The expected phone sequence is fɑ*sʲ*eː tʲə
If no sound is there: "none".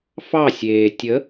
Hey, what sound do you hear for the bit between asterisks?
sʲ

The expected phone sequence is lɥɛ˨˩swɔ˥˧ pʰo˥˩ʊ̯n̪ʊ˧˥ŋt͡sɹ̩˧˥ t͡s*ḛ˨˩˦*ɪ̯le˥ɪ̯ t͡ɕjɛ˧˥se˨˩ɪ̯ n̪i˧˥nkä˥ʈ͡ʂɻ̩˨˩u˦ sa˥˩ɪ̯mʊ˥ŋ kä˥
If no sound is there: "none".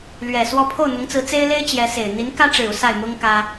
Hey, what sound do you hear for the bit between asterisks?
e˥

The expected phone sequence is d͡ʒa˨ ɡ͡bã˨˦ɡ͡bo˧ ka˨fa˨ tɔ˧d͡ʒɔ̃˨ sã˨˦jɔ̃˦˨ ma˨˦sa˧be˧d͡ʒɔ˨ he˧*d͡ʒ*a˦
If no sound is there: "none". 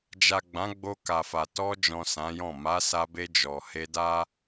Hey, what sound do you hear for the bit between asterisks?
d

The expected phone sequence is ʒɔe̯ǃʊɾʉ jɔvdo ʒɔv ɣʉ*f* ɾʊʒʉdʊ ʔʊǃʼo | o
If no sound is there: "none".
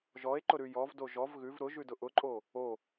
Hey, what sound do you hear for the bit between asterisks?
v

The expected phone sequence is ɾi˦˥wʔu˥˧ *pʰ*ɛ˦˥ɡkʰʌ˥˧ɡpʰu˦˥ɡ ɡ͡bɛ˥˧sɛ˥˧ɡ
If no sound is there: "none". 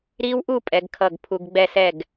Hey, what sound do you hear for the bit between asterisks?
pʼ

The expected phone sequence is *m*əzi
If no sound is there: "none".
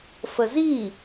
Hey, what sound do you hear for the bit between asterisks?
f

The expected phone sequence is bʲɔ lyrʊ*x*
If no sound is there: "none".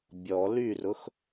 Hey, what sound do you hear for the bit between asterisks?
x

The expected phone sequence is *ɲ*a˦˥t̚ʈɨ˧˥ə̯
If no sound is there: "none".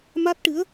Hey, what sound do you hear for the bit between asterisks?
m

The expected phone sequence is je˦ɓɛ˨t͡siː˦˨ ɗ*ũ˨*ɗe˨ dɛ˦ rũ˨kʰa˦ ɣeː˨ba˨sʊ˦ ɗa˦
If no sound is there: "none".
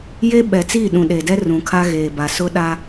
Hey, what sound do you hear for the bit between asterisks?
ũ˨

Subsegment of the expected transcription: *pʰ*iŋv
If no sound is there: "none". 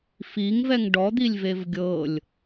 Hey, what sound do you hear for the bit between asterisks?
f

